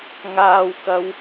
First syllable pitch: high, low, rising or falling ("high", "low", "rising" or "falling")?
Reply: high